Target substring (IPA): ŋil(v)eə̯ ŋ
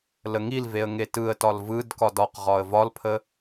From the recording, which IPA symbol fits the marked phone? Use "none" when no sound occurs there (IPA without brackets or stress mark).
v